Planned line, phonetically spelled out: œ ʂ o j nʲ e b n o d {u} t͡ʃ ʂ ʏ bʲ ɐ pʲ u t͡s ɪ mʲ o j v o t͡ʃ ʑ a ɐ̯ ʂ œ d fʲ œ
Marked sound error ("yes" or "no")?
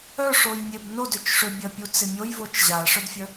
yes